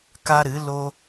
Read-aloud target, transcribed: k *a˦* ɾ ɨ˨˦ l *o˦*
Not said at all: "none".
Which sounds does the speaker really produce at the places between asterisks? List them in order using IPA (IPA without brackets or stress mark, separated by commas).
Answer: a˦, o˦